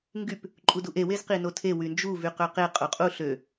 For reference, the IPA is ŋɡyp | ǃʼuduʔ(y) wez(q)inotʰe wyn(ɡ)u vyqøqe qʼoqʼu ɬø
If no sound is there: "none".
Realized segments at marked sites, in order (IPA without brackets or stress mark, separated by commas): e, q, d͡ʒ